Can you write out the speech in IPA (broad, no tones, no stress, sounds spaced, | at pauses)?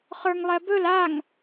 χ ə˞ ŋ lˠ ɛ b ɵ l a ŋ